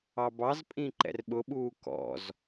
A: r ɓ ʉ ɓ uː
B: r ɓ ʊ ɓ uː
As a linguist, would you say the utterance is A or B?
B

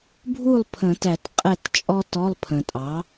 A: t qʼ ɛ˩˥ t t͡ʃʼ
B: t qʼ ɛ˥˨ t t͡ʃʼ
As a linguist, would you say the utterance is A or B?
B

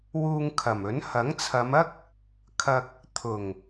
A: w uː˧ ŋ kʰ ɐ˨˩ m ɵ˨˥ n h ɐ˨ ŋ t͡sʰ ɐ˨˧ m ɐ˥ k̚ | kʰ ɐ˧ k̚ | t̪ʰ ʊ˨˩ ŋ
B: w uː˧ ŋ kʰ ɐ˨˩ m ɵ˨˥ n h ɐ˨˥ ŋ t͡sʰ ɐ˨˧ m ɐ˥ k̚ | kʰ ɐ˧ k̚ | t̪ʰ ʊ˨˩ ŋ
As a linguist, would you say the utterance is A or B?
B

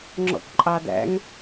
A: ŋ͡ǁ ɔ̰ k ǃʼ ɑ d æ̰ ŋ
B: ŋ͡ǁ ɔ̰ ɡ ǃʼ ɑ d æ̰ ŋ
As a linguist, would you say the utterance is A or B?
A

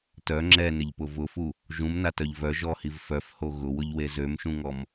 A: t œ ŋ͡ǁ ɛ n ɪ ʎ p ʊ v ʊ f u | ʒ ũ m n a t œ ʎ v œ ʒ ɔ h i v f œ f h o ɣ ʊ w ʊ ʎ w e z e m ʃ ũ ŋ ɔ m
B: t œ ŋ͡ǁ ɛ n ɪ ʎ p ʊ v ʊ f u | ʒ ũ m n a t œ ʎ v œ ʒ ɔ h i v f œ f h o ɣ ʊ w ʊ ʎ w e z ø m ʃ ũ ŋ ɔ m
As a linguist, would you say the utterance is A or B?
B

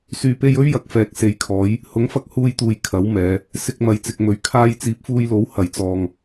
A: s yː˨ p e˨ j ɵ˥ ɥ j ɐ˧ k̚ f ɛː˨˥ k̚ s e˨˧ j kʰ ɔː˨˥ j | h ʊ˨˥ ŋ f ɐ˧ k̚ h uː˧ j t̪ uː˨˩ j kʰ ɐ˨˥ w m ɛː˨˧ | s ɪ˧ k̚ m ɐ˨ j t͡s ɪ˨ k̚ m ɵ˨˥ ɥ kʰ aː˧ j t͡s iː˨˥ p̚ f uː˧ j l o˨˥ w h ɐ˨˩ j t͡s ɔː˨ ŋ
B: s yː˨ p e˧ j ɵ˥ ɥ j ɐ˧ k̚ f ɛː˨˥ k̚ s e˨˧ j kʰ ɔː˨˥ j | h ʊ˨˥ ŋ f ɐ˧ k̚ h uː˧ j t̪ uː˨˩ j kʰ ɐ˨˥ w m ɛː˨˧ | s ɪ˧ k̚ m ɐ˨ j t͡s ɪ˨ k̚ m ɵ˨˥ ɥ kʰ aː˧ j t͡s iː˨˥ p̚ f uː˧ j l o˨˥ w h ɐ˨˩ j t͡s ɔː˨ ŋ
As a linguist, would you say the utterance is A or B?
B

